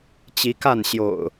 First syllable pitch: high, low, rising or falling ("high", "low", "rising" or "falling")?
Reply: rising